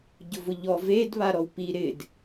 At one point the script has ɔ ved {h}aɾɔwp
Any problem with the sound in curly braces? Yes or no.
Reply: yes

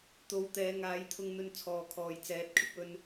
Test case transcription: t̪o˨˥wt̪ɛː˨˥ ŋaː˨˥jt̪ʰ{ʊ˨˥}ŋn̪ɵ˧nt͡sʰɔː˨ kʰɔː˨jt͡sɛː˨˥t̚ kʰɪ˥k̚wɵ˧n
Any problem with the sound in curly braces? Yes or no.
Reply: yes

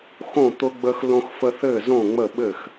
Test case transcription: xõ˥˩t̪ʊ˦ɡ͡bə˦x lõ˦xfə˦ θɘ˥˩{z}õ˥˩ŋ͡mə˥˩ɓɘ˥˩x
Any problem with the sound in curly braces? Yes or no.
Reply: no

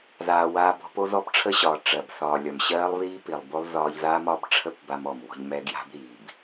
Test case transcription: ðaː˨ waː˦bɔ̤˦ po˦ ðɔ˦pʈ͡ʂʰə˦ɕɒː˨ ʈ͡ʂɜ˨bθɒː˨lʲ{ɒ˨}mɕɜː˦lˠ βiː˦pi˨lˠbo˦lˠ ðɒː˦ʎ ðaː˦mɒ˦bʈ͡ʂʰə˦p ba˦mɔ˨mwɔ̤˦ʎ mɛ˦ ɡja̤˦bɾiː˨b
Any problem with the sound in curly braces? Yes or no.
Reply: no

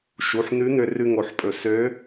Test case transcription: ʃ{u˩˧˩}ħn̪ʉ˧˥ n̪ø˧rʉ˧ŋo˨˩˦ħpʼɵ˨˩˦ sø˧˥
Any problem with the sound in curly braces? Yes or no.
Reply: no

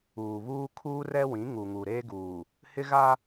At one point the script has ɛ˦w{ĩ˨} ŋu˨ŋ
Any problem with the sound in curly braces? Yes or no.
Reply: yes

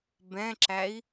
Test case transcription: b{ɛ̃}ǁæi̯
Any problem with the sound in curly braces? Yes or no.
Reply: no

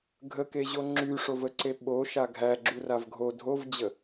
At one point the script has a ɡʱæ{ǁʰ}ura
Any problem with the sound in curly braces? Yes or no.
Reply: yes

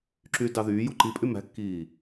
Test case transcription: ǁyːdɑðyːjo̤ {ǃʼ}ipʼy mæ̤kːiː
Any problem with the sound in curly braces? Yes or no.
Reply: yes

